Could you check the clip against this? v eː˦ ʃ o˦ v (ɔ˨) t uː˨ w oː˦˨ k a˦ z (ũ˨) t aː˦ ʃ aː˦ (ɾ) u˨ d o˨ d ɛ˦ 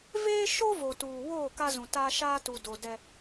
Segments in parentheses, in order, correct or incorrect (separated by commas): incorrect, correct, incorrect